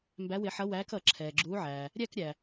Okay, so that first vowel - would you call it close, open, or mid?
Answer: open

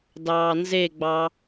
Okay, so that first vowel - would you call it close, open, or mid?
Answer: open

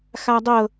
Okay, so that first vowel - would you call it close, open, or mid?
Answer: open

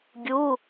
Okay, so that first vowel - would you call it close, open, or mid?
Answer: close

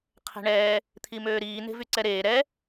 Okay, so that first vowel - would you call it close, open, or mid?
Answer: mid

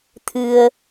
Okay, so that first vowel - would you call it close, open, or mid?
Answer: close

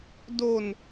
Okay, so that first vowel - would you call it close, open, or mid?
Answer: mid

